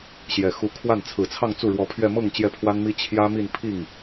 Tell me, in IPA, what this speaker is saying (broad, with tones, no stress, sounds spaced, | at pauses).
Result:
ɕ j ɛ˨˩ x u˧˥ kʰ w a˥˩ n t͡sʰ ɹ̩˨˩ t͡sʰ ɑ˥˧ ŋ t͡s u˥˩ ɻ w ɔ˧˥ pʰ ɥ ɛ˥˧ m ɤ˥˧ ŋ t͡ɕ j ɛ˥˩ pʰ w a˥ n m i˥ t͡ɕʰ j ä˥ m i˥˧ n pʰ i˥˩ ŋ